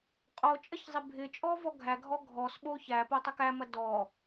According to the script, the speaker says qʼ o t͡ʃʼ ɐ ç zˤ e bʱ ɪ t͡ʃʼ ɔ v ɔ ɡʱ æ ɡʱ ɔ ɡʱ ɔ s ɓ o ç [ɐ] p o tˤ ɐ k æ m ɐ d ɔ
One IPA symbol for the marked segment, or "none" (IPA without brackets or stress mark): æ